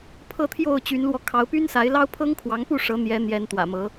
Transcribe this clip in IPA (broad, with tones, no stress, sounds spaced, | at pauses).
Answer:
pʰ ɤ˥˨ t̪ʰ j o˥˨ ʊ̯ t͡ɕ y˨˦ n l w ɔ˧ kʰ ɑ˨˦ ʊ̯ p y˦ n s a˨˦ ɪ̯ l ɑ˦ ʊ̯ pʰ ɤ˦ ŋ kʰ w ɑ˨˦ ŋ p u˥˨ ʂ ɤ˨˦ n̪ j ɛ˨˦ n̪ j ɛ˨˦ n t̪ w ä̰˨˩ m ɤ˨˦